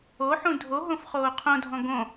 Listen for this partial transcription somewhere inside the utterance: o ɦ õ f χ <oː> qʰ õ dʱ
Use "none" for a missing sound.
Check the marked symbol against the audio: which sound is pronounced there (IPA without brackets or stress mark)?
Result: oː